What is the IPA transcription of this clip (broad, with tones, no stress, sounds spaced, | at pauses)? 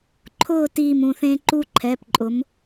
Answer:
ǃʰ ʊː˥˧ t iː˥˧ m ũ˩˧˩ θ ẽː˥ ǃ u˥ ǃʰ ɛ˩˧˩ p ǃʼ ʊ˩˥ m